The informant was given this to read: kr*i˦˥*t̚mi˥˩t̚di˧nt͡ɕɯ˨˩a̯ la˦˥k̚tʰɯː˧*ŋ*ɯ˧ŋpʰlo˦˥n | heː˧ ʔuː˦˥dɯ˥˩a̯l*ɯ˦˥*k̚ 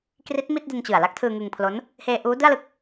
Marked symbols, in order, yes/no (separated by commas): yes, yes, yes